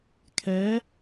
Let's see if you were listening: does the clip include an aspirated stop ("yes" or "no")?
yes